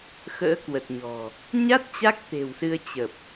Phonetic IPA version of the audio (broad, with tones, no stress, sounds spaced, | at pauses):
x ə̰ː˧˥ k w ə˨˩ t̚ ɲ ɔ̤˨˩ | ɲ a˦˥ t̚ t͡ɕ a˦˥ k̚ t̪ e̤˨˩ w s ɨ˧ ə̯ t͡ɕ ə˨˩ p̚